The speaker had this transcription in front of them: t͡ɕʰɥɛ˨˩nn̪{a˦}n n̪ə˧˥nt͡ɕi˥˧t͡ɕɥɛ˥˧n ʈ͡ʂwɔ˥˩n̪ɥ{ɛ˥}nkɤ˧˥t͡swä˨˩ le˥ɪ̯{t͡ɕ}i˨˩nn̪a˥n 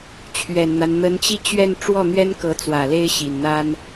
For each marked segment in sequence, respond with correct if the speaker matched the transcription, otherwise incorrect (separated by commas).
correct, correct, incorrect